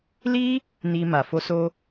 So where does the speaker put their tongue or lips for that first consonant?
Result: tongue tip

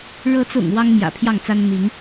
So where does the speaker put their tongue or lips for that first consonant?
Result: retroflex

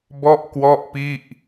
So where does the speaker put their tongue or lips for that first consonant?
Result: lips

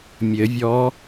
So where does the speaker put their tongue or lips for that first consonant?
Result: lips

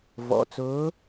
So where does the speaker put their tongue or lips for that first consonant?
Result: lips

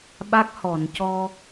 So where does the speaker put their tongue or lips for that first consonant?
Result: lips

